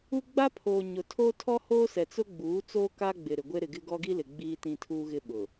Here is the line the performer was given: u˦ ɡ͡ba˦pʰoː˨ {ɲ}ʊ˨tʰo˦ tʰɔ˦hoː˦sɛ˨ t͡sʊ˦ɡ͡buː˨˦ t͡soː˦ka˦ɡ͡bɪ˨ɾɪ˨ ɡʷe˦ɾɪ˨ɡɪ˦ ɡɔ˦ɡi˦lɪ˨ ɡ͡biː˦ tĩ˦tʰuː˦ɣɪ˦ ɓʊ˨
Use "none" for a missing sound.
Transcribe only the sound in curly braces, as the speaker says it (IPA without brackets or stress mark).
ɲ